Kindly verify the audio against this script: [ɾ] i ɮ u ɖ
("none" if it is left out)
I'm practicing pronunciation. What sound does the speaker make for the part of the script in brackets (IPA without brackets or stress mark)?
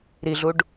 ɾ